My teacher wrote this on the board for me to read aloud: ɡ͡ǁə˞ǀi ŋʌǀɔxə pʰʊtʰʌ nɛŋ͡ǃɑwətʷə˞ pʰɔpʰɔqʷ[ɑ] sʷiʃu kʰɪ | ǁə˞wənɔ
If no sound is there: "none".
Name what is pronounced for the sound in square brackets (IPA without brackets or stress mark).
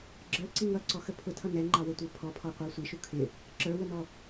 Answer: ɑ